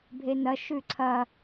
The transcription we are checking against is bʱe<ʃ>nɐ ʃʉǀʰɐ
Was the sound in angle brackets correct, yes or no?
no